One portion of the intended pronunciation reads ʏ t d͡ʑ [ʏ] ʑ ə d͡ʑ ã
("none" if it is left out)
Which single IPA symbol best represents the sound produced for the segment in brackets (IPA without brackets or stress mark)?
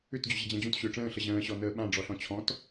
ʏ